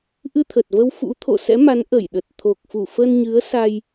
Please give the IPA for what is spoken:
ʔɨ˧t̪ʰə˨˩t̚və˧w fṵ˧˥ t̪ʰo̰˧˨sɛ̰˧˥ma˨˦n ʔə˧˩jɗə˨˩t̚ t̪ʰo˨˩k̚fu˧˩fə˧nɲɨ˨˦ə̯ sa˧j

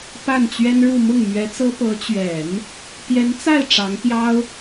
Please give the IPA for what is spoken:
pa˥˩nt͡ɕɥɛ˥nɻu˥˧ mʊ˥˩ŋmɥɛ˧˥t͡sɤ˥ pɤ˧˥t͡ɕɥɛ˨˩˦n | pjɛ˧˥nt͡sa˥˩ɪ̯ ʈ͡ʂɑ˧˥ŋpjɑ˥ʊ̯

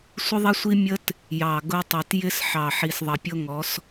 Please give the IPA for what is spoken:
sʷə˦ðˤɛ˦sʷi˦ mʲə˦t | jɑ˨ ɡʊ˦tˤi˨t jɪ˦sħɑ˨ ħi˨sðˤʌ˨pʲʊ˦ŋɔ˨˦s

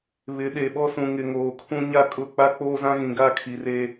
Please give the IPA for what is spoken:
βɪ˨˦ɗe˨ɓɔ˦sũ˨ ŋɪ˨ŋoː˨kʰũ˦ ɲa˦kʼʊ˦˨ k͡pa˦k͡poː˦zã˦ ɣĩ˨ɡa˦˨kʰi˨ re˦

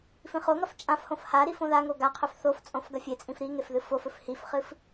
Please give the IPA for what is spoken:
fĩχoŋɐf t͡ʃʼãfhõf haɾif õðaŋo ɡaqʰɵf θoft͡sʼõf ɡɐfʲet͡sʼĩf ɾi ŋefðɨfofɵf hifχɨf

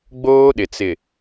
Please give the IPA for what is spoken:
ɡ͡boː˦ɗɪ˨ t͡sɪ˨

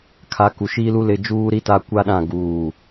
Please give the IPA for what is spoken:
kʰa˨˦ku˨ ʃiː˦lu˦ lɪ˦ d͡ʒuː˦ɾi˦ta˦ kʷa˦ɗã˦˨ ɡuː˦˨

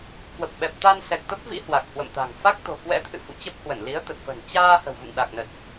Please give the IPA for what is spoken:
kwə˨˩p̚ɓɛ˨˩p̚ t̪a˧nsɛ˨˩k̚t̪ə˦˥p̚vḭ˧˥ hwa˨˩k̚hwə̰˧˨mt̪a̤˨˩ŋ fa˦˥k̚t̪o̤˨˩kwɛ̰˧˥t̪ʰɨ̰˧˨ fṵ˧˨t͡ɕə˦˥p̚hwə˧˩n li˨˦ə̯t̪ə˨˩t̚fə̤˨˩n t͡ɕaː˧ hə̤˨˩wvṵ˧˨ŋɗa˨˩k̚ nə˨˩t̚

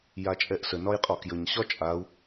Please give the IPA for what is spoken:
jat͡ʃʼɛʔsə nɒjqʼɒkjəɲ ɕɒt͡ʃʼau̯

